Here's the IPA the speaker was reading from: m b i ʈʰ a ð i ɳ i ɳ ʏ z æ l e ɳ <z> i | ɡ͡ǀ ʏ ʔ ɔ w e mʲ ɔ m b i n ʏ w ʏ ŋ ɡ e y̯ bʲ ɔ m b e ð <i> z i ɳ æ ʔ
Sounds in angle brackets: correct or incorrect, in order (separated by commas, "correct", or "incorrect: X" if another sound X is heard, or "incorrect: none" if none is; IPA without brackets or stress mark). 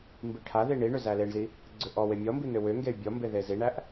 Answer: correct, incorrect: e